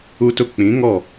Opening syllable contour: high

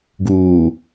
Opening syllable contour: low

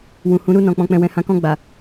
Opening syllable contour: low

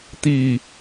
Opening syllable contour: falling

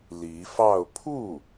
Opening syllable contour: rising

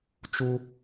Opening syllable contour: high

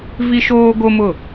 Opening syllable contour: high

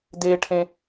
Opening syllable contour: high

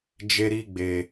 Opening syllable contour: high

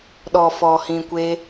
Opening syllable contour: low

